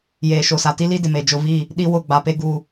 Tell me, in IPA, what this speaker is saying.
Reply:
jeː˨ʃo˨sa˨ ti˦li˦dɪ˨me˨ d͡ʒʊ˨vi˦˨ | ɗi˦wʊ˦˨ ɡ͡ba˨pe˦ ɡu˦

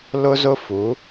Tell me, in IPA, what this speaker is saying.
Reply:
lʊ˦zʊ˦fu˨˦

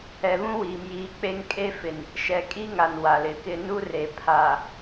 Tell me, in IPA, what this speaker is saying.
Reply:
ɛ˨βũ˦wiː˨m jiː˨k͡pe˦ŋkʼe˦fɪ˨n | ʃɛ˨kʼi˦ŋa˨n wa˨lɪ˨kɪ˦ nu˦re˨ pʰa˨

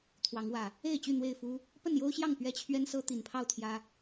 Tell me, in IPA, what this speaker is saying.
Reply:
t̪ʰwɑ˨˦ŋwä˨˩ | e˥˨ɪ̯t͡ɕy˥˨ n̪we˥˨ɪ̯fu˦ | pə˥˨njo˦ʊ̯ɕjɑ˥˨ŋ pɥɛ˦t͡ɕʰɥɛ˦nsɤ˦ t̪i˨˩npʰɑ˥˨ʊ̯ t̪ʰjä˦

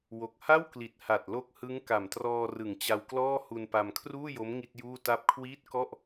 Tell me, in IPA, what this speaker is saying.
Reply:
wo˨˩k̚ha˥˩wkli˨˩t̚ha˨˩t̚ lo˦˥k̚ hɯ˦˥ŋ ka˨˩mtrɔː˧rɯ˨˩ŋ t͡ɕa˧wklɔː˥˩ hu˧npa˧mkʰruː˥˩jo˦˥m ŋi˥˩t̚juː˥˩ta˥˩p̚ kʰwiː˦˥t̚ kɔ˥˩ʔ

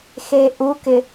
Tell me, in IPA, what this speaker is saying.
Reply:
xeʔukɪ

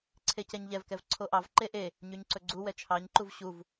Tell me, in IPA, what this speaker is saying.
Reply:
ǀʰecɛɲʎɛvkɛv ǀʰoʔɑv ǃeʔe | ɲyɲǀɵɡ͡ǀu wɛt͡ʃʰɑɲǃuv ɕuv

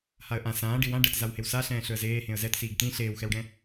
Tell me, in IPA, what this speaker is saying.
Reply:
haə̯ʔã sãː ɖiwã ɖɛtzawhewsa ɬɛ̃ːɬɵə̯zeː hẽə̯zɛt siːɡtĩ ɬeːwxɛwɖɛ̃

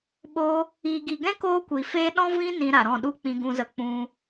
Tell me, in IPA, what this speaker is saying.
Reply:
ɓo˧ | iː˨ɡi˨ɡɛ̃˦ koː˦kʷi˨feː˦ ɗɔ̃˦vĩ˦ nĩ˧ɾa˨ɾɔ̃˦˨ɗu˦ k͡pĩ˧ɡũ˧zə˧ k͡pũ˧

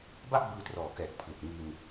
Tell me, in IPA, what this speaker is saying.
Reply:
ba˥˩ʔbɯː˧ trɔː˨˩kɛː˨˩k̚pʰlu˨˩k̚ ŋi˧n

